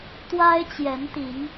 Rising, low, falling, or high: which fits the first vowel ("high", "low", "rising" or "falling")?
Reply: high